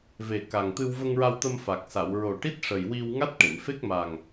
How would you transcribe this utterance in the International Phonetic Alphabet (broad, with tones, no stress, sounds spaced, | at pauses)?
v e˨˩ k a˨˩ ŋ t̪ ɨ˧ w v ə˧ ŋ ɹ a˧ w t̪ ə˧ m f a˨˩ k̚ s a˨˩˨ w ɹ o˨˩ ʈ i˦˥ t̚ ʂ ə˨˩ j w i˧ w ŋ a˦˥ t̚ ʈ e˨˩˨ m f e˦˥ k̚ m a˨˩ ŋ